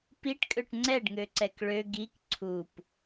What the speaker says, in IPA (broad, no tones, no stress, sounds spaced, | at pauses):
p i ʈ kʼ ø ʈ ŋ͡ǀ ɛ ɖ ŋ ø ǀ ɛ k ɭ ø ɡ i k ǀʰ u p